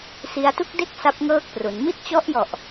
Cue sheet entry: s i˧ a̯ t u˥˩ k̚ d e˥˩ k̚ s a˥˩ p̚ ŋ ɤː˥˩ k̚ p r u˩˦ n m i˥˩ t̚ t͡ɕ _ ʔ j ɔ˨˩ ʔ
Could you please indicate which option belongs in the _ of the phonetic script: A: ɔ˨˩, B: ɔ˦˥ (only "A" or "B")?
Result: B